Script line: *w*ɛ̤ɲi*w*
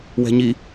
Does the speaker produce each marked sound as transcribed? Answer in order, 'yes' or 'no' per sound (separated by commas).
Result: yes, no